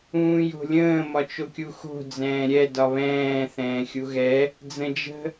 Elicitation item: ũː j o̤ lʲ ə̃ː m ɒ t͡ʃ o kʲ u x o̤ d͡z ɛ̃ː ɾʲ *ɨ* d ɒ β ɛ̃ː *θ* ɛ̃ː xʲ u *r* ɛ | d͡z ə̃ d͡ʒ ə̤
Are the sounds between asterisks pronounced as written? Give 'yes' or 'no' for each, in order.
no, yes, no

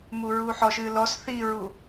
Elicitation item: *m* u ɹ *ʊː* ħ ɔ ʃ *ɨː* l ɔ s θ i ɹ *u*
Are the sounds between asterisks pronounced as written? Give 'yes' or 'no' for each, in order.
yes, no, yes, yes

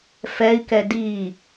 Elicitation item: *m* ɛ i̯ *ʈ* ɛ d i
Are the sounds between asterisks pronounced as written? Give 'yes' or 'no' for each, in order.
no, no

